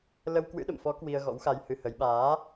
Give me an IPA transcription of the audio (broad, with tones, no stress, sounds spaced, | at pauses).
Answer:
l ə˧ w k w ɨ̰˧˥ ɗ ə̰˧˨ m f ɔ˨˦ k w i˧ ə̯ ɣ ɔ̰˧˥ w x a˧ j h ɨ˧ h ə˨˦ j ɓ aː˨˦